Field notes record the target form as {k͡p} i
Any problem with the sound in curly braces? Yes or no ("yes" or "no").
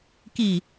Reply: yes